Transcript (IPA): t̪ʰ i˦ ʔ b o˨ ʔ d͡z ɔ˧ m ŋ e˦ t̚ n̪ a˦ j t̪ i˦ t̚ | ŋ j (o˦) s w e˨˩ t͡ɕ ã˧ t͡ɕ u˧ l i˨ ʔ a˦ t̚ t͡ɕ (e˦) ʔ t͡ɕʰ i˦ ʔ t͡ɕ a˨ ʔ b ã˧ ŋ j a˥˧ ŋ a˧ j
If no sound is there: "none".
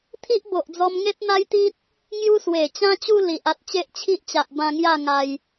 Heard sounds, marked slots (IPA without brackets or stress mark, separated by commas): u˦, e˦